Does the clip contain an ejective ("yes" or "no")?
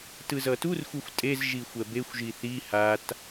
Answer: yes